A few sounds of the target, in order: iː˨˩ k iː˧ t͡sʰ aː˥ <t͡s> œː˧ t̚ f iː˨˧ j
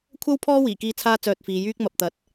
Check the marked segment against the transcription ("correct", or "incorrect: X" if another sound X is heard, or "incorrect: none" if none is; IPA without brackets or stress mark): correct